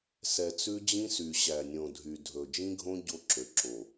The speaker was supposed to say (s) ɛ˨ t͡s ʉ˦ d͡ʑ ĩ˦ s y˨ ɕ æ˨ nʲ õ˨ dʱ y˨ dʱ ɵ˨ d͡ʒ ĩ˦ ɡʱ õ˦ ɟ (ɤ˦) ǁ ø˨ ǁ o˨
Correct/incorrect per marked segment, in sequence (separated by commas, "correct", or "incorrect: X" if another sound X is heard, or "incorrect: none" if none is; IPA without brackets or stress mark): correct, incorrect: o˦